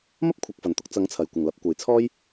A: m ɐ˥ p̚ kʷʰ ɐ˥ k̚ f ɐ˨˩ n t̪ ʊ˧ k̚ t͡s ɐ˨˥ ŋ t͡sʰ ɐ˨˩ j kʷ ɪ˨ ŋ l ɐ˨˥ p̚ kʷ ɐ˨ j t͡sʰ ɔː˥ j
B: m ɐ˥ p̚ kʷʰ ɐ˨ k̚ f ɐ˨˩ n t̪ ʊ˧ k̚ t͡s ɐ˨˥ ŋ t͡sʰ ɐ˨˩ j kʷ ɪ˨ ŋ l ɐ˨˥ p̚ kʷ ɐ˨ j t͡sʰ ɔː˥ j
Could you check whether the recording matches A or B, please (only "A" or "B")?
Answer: B